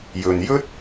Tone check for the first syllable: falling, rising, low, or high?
low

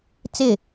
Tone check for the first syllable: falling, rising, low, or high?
falling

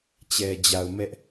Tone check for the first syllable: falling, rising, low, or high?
low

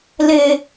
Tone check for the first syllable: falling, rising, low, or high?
high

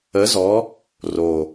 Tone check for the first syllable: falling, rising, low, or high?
rising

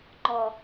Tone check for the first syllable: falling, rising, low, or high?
low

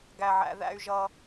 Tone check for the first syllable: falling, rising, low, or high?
high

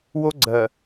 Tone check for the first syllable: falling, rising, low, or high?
high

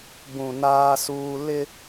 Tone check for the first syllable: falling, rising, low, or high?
low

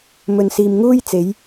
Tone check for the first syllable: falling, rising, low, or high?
low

